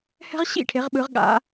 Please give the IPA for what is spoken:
h ɛ̤˥ ʁ ɕ ḭ˥˩ ʈʰ e˨˦ ʁ ɓ ɯ˨˦ ʁ ɠ a̰˨˦

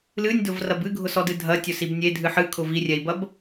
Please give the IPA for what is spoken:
l ɨ nʲ d ʊ v r ɐ b ɨ ɡʱ ʊ s ɔ d ɨ dʱ ɐ tʲ ʊ s i b nʲ e dʱ ɨ ħ ɨ kʰ ʊ v i rʲ ɛ i̯ b ɐ b

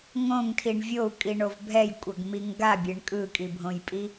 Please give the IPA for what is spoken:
ŋ õ ŋ tʰ i ɳ vʲ o u̯ kʼ i ɳ o v bʱ ɛ j kʷʼ ʌ ɡ m i ŋ ɡ a bʲ e ɳ kʼ ɯ kʼ i bʱ õ j pʼ i

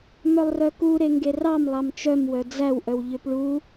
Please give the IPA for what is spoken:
m œ lˠ r œ k u ɾ e ŋ ɡ e r ɑ m lˠ ɑ m t͡ʃ œ m w œ d͡z æ w ʔ œ w ʎ ø p ɭ u

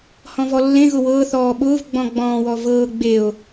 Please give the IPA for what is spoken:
h ɔ̃ v ɔ lː ẽ ɣ ʊ w ɤː θ ɔː ɓ ʊː v ɡ͡b ɔ̃ ɡ͡b ɔ̃ː w ɔ v ɤː ɡ͡b e o̯

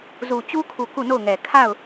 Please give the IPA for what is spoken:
z u˨ t͡ɕ u˦ kʰ u˨ k u˦˨ n o˦˨ ʊ̯ ŋ ɛ˨ kʰ a˦˨ ʊ̯

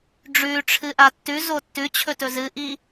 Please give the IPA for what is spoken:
ɖ͡ʐ ʉ ʈ͡ʂʰ ɨ ʔ a tː ʉ z o tː ʉ t͡ɕʰ ɵ t ɵ z ɨ ʔ i

